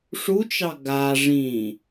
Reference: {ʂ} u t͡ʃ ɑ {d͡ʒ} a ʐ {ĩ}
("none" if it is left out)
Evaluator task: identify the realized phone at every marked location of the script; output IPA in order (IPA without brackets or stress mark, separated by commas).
ʂ, ɡ, ĩ